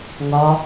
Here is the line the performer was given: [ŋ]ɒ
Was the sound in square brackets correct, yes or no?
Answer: yes